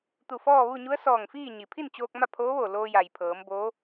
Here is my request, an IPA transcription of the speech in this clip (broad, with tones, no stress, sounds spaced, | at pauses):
t̪ u˧˩ f ɔː˥˨ ʋ u˥˨ ɲ u˧˥ ə̯ s ɔː˧˩ ŋ f iː˥˨ ɲ i˩ pʰ i˥˨ n t͡ɕ oː˧ k̚ m a˥˨ pʰ oː˧˥ ʋ oː˧˩ l oː˧ j a˩ j pʰ ɤː˩˧ m b oː˧˥